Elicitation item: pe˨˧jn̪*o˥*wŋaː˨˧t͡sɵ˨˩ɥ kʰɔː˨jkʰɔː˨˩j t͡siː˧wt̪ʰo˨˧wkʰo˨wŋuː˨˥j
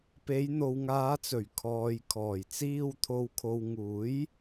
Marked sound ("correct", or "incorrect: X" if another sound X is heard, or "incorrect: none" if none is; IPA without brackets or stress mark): incorrect: o˨